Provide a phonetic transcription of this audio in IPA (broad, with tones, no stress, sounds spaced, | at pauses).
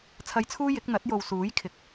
t͡sʰ ɐ˨˧ j t͡sʰ uː˧ j ɪ˨˥ k̚ n̪ ɐ˨˥ t̚ j o˨ w s uː˨˥ j kʰ ɪ˨ k̚